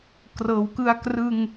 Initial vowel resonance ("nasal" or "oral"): oral